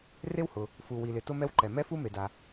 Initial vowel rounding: unrounded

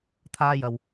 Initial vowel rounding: unrounded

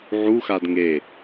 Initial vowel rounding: rounded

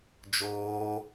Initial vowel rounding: rounded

